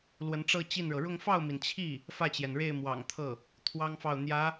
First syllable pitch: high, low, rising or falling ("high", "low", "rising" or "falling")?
rising